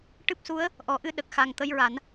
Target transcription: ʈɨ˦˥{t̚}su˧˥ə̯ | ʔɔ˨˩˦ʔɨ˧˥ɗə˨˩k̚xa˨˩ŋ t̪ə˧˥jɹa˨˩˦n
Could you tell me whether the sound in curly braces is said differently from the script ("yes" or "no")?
yes